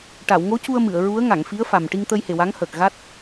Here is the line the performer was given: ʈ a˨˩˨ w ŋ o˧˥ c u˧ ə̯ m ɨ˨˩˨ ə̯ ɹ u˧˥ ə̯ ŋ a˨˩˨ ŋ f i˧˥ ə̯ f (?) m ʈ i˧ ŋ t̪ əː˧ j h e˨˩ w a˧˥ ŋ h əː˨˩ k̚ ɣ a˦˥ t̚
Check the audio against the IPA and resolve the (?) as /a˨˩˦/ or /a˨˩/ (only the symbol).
a˨˩